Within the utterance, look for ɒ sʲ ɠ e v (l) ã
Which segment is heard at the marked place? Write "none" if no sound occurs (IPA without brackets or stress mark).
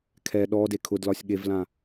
l